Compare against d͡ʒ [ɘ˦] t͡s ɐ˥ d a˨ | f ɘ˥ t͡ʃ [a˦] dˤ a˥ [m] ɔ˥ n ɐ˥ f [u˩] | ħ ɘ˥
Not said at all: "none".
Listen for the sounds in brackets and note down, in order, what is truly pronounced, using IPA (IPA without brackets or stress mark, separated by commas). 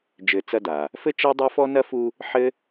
ɘ˦, a˥, f, u˦